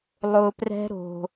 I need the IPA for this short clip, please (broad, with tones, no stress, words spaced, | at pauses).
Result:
lˠʊ˧prɛ̤˦ɾo̤˧